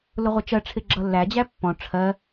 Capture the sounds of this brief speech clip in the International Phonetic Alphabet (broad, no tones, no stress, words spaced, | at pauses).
lʊʁʷət͡ʃɜʈ͡ʂʰɪ ɡ͡ǁʌlːæd͡ʑæ pːɔ̃ ʈ͡ʂʰɜ